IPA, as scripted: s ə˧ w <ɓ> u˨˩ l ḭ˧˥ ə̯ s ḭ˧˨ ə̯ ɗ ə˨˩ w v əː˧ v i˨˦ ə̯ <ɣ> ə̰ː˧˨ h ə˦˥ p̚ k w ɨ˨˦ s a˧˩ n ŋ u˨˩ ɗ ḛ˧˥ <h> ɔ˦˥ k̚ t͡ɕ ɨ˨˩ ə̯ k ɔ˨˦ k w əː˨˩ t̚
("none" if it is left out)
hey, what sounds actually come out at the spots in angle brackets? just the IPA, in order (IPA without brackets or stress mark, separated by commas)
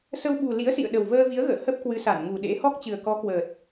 ɓ, ɣ, h